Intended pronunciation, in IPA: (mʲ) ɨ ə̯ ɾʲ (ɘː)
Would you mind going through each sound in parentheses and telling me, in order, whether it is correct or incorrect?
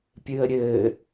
incorrect, correct

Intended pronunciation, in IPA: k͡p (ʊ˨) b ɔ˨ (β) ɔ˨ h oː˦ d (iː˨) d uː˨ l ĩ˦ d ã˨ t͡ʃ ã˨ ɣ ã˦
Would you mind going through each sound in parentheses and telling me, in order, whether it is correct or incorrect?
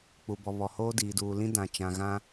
incorrect, correct, correct

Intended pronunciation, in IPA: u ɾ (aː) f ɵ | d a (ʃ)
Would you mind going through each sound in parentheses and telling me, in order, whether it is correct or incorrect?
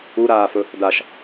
correct, correct

